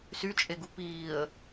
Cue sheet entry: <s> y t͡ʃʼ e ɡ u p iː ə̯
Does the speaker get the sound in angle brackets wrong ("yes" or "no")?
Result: no